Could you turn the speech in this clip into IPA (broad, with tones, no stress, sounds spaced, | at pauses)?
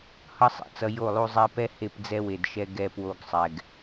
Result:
h ʌ˦ sˤ ḛ˨ t͡s ʌ˧ j o˦˨ lˠ u˧ zˤ ɛ˧ p ɛ˦ h e˦˨ p d͡z ɛ˦ w e˨ d ʃ ɛ˧ ɡ ɛ˧ p w o˧ ɡ sˤ ɛ˨ ɡ